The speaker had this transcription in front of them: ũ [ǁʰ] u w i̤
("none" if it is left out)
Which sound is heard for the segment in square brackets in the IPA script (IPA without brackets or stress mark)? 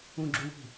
ɡ͡ǁ